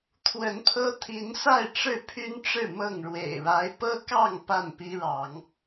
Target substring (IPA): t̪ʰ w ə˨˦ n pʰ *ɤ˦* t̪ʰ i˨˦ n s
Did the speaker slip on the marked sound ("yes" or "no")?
no